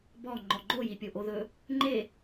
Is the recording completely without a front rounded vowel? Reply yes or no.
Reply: yes